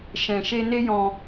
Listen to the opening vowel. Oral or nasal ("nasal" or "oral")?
nasal